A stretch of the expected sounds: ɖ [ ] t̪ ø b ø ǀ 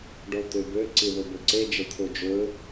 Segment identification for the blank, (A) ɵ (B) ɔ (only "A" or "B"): B